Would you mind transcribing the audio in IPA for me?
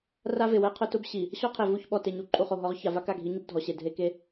r a˦ v e˨ w ɛ˦ qʰ ʊ˦ t ʊ˦ b ɕ i˨ | ɕ ɔ˦ qʰ e˨ v u˦˨ ç ɓ ɔ˨ t e˨ ɲ u˨ ǃʼ u˨ χ o˨ ɦ ɔ˨˦ ʁ ç a˨ v a˦ k a˦˨ ɡʱ i˨˦ ɲ u˦ b dʱ ɔ˨ ɕ e˨ dʱ e˦ k e˦

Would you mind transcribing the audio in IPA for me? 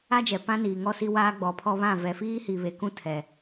a˦ d͡ʒ ɛ˨ p ã˦ n iː˨ ŋ ɔ˦ s i˦ w aː˦ ɡ͡b ɔ˨˦ pʰ ɔ˦ β ã˦˨ v ɛ˨ f iː˦ h i˨ β e˨ k ũ˦ tʰ ɛ˨

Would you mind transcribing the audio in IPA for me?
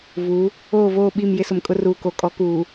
v u˨˦ | oː˦˨ v oː˦˨ ɓ i˦˨ m j ɪ˦ s ʊ˨ m kʼ ʊ˦ r uː˨ k o˨ kʼ ɔ˨˦ k uː˨

